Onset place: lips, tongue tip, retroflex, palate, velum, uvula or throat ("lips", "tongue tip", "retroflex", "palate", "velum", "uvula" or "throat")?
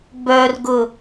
lips